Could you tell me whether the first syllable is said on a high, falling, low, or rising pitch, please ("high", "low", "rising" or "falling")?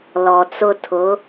low